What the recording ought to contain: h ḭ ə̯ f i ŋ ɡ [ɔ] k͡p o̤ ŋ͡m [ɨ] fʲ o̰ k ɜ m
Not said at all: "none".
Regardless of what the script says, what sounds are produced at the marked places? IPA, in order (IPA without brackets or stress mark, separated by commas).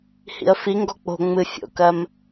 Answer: ɔ, ɨ